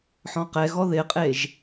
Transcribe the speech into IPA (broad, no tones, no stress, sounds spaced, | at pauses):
ħ ɔ̃ q ɛ ɣ ɔ ð ɪ qʼ e ʒ